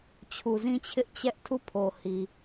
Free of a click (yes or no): yes